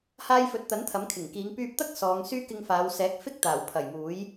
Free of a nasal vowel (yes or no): yes